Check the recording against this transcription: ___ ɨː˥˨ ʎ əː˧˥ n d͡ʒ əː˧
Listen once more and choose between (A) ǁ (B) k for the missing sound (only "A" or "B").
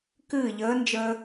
B